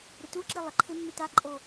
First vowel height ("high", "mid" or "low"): high